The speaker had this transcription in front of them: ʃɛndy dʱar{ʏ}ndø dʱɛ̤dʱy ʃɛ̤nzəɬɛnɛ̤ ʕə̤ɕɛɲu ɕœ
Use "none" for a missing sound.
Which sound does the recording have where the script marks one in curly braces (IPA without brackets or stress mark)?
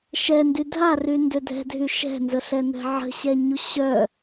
y